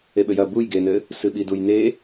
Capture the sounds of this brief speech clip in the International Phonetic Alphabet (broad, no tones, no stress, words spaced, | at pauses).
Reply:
eɓɘjɐ buj ɡenɘ | sɨɓidujne